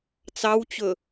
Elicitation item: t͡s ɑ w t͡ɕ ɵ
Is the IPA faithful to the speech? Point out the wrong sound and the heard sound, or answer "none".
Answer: none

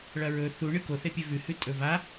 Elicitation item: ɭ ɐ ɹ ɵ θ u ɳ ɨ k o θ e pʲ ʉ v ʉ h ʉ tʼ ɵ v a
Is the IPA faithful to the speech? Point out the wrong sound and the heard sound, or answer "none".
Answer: none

